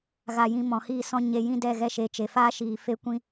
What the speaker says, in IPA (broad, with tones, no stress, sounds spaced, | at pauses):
ɣ a˧ j ĩ˧ m ɔ̃˨ h iː˧ s ɔ̃˧ ɲ e˧ j ĩ˦ d ɛ˦˨ ɣ ɛ˧ ʃ e˨˦ t͡ʃ e˨ f aː˦ ʃ iː˧ f e˧ kʷ ĩ˧